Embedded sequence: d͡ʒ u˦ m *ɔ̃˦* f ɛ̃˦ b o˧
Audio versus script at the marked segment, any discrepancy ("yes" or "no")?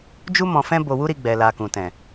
yes